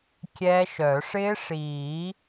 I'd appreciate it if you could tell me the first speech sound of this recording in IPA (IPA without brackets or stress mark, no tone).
kʲ